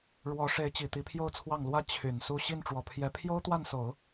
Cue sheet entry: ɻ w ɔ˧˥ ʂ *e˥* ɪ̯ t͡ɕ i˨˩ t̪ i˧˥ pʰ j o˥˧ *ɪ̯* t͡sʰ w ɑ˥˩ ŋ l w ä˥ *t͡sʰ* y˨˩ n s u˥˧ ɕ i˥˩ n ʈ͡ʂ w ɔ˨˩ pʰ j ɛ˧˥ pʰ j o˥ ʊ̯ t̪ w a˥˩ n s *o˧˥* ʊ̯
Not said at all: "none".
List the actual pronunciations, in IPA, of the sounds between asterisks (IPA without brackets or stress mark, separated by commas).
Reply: e˧˥, ʊ̯, t͡ɕʰ, o˨˩˦